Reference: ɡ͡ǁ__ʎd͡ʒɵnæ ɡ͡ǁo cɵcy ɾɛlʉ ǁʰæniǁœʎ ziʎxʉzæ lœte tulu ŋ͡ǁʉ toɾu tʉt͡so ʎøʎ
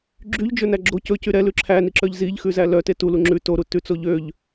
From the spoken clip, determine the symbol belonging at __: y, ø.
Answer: y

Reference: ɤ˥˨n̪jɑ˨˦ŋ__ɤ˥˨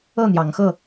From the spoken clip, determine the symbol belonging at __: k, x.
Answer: x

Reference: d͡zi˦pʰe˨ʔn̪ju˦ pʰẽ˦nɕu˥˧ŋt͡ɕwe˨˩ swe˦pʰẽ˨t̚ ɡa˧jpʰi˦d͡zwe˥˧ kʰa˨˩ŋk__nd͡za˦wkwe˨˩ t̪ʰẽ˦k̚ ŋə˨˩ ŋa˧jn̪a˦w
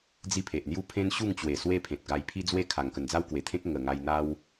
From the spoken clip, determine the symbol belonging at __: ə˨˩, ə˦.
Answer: ə˨˩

